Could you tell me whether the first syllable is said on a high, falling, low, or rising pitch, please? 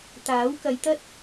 rising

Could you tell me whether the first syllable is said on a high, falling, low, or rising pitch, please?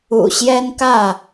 low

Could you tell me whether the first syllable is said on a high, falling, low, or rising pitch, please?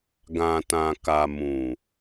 low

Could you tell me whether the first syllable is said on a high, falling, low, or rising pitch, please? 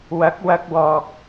rising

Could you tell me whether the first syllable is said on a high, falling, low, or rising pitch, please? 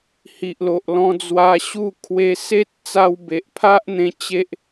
low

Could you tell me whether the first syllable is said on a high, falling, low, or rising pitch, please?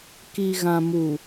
low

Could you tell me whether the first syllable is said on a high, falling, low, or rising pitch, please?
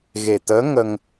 low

